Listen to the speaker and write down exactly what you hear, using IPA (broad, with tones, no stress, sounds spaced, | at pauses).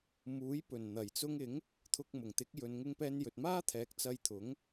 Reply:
m uː˨˥ j p ɵ˨˩ n n̪ ɐ˨˩ j t͡s ʊ˧ ŋ ɪ˨˥ ŋ | t̪ʰ ʊ˧ k̚ m ʊ˨˩ ŋ t̪ ɪ˨˥ k̚ j ɵ˨˧ n ŋ ɪ˧ ŋ p ɛː˧ n j ɵ˨ t̚ m aː˥ t̪ʰ ɛː˨˥ k̚ t͡s ɐ˧ j t̪ʰ ʊ˨˥ ŋ